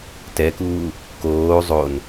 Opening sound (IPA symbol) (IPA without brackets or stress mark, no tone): t